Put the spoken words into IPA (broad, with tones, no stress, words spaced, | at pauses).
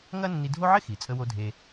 ŋɐ˥nːi˧dʱo˥ ʕɪ˥xi˩t͡sʼə˧wo˧ dʱe˧